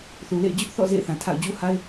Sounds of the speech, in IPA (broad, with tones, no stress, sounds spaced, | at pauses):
θ u˨ l ḛ˦˨ ɪ̯ d͡ʑ ʊ˦ ʔ θ ɔ̰˦˨ z ḛ˦˨ ɪ̯ θ ã˨ tʰ a̰˦˨ ʊ̯ d͡ʑ u˦ h a˦ ɪ̯